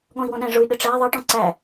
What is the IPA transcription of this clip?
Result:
ɠ ɔ̃ i̯ w ɔ̃ ɗ æ̃ ʐ ʊ y̯ ɗ ə ʈ͡ʂ æ ðˤ ʌ ʈ ɔ̃ ǀ æ

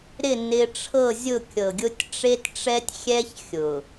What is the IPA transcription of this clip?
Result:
ɾ ɪ˦˨ n ɪ˦ ʈ͡ʂʰ ɤ˦˨ zʲ ʊ˦˨ kʲ ɤ˨ ɡʲ ʊ˦ tʲ ʈ͡ʂ e˦ t ʈ͡ʂ ɛ˦ tʲ xʲ ɛ˦ ç xʲ ʊ˨

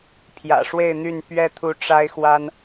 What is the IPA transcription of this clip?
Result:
pʰ j ä̰˨˩ ʂ w e˥˨ ɪ̯ n̪ y˥˨ n p ɥ ɛ˦ t̪ʰ u˨˦ ʈ͡ʂ a˦ ɪ̯ x w a˦ n

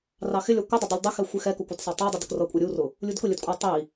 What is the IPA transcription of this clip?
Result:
r ɑ x ɪ lʲ ɒ kʷ ʌ dˤ ʊ dˤ ʌ lʲ dˤ ɪ x ɛ xʷ ɪ x ɛ k ʊ kʷ ɜ d sˤ ɛ tˤ ɑ dˤ ʌ d ə k r ʌ kʷʼ æ ɾʲ u r ʊ | lʲ u d k ʊ lʲ ə d kʷʼ ʌ tˤ i

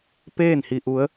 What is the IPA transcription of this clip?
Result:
p eː˥˨ n h i˧ ʔ u˧˥ ə̯

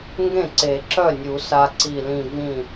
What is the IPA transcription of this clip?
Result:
ŋ ɡ ẽ˥˩ ǀ e˨˩˦ ǁ œ˥˩ nʲ u˨˩˦ s a˦˥ ǀ i˧˩ l ĩ˧˩ v ĩ˥˩

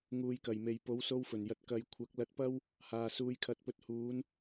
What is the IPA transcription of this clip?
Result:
ŋ uː˨ j k ɐ˨˩ j m e˨ j p o˨˥ w s o˧ w f ɵ˨˩ n j ɐ˨ t̚ k ɐ˨˧ j kʷʰ ɐ˨˥ k̚ l ɐ˧ t̚ p ɐ˥ w | h aː˨ s uː˧ j kʰ ɐ˧ t̚ p ɵ˧ t̚ h uː˨˧ n

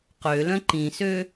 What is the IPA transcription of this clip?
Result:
q ø l œ̃ ǃ ĩ s ø

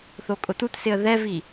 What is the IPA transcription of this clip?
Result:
θ o kʼ ʊ t u t s ɪ ə̯ ð ɛ v i

